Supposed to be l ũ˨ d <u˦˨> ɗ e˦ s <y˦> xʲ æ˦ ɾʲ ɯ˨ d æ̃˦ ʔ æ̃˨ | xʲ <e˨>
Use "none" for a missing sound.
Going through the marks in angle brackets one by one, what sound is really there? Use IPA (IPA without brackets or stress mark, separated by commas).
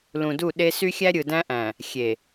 u˦˨, y˦, e˨